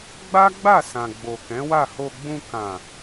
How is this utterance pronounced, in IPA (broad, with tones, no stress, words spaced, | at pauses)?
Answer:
ɡ͡ba˦ɡ͡ba˦˨ sã˨ɡ͡bo˨kɛ̃˨˦wa˦˨ ho˧ɡ͡bũ˧ kã˨